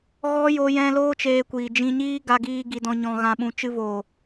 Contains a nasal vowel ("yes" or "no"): yes